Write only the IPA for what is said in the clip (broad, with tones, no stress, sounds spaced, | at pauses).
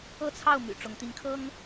ɤ˥˨ t͡sʰ ɑ˥˨ ʊ̯ m y̰˨˩ ʈ͡ʂ ʊ˨˦ ŋ t̪ i˨˦ ŋ kʰ ɤ˦ ŋ